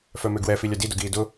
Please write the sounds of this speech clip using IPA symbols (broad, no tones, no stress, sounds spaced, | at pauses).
f œ m ø ɡ w ɛ f i lʲ œ d i d ʊ ɡ iː d ʊ